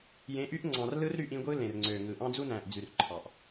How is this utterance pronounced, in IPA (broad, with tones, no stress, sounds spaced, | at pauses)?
j ẽ˨˦ ʔ y˦ ʔ ŋ͡ǀ ɑ̃˨ r l ɯ˦ r ɾ y˦ ʔ ĩ˦ ɡʷ ɯ˦ l ẽ˨ r ŋ͡ǀ ø˨ ŋ ɯ˨ ʔ ɑ̃˦ d͡z u˦ n æ̃˨ ʔ d͡z y˨ r ǃʰ ɑ˨ ʔ